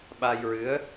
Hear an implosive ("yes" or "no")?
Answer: yes